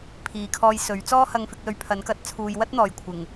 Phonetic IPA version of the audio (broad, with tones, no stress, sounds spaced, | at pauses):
pʰ iː˨ kʰ ɔː˧ j s ɵ˨˥ ɥ t͡s ɔː˥ h ɐ˧ ŋ f ɪ˧ k̚ l ɵ˧ ɥ pʰ ɐ˨˥ n k ɐ˨˥ t̚ t͡sʰ uː˨ j w ɐ˥ t̚ n̪ ɔː˨˩ j kʷʰ ɪ˨˩ ŋ